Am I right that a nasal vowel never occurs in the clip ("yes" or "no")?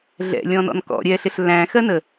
no